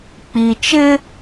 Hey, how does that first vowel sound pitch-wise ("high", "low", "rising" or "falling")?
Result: low